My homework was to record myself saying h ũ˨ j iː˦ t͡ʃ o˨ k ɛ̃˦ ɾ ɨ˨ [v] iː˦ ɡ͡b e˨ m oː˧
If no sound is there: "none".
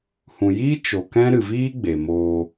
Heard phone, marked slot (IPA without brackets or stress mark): v